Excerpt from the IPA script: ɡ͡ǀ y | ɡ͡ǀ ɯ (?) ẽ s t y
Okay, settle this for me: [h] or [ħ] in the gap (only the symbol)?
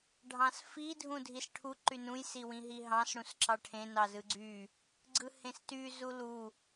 h